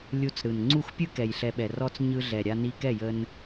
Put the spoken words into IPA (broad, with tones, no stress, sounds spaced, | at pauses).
lʲ u˧ t͡s ɾ ɯ˨ n ŋ͡ǀ u˦˨ x pʲ ɯ˦ k ɛ˨ j ɬ ɛ˨ ɓ ɛ˨ r ɔ˧ t͡s ɲ ɯ˧ ɮ ɛ˨ ɾʲ a˧ n i˧ k ɛ˦˨ j ə˧ n